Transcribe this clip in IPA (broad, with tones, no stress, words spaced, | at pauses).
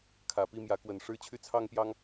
kʰä˨˩pi˥˨mjä˨˦ kwə˨˩n ʂɻ̩˥˨t͡ɕʰy˥˨t͡sʰɑ˦ŋpjɑ˦ŋ